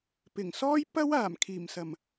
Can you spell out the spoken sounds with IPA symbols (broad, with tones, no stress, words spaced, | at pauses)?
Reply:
pɪ˨˩ŋsɔː˥j pɐ˥w aː˨˩mkʰiː˨˩m sɐ˨˩m